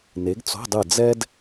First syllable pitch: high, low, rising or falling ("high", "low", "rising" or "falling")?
rising